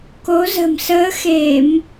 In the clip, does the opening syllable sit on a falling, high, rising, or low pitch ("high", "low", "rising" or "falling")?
rising